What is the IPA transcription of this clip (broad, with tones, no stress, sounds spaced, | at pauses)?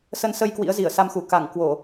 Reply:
s ə˧ n s ə˧ j k w ḭ˧˥ ə̯ z i˧˩ ə̯ s a˧ m x u˧˩ k a˧˩ ŋ k w o˧˩˨